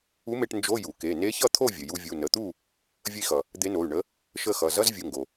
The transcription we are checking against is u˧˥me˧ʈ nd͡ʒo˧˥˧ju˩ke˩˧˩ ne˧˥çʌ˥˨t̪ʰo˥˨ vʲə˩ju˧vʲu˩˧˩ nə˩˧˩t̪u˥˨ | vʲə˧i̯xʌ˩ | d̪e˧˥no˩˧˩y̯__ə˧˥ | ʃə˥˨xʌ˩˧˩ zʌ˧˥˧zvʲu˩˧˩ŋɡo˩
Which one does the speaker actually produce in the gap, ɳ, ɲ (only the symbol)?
ɳ